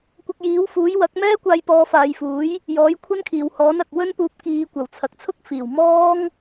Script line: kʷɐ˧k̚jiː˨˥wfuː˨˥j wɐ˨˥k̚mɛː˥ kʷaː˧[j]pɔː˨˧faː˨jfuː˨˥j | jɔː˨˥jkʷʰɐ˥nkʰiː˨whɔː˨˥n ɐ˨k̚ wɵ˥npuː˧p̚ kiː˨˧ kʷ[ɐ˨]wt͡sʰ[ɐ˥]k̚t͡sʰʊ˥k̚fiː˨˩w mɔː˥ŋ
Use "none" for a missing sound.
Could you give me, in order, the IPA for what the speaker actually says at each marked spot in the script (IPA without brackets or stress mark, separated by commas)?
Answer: j, ɐ˨˩, ɐ˨